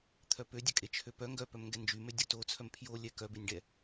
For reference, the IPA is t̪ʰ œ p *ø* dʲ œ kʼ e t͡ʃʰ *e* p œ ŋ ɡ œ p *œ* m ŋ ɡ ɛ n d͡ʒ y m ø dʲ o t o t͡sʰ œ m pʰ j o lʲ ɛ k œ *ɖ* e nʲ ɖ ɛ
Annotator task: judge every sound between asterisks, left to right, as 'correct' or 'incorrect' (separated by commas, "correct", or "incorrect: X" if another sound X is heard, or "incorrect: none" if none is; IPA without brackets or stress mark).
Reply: correct, incorrect: ø, correct, incorrect: b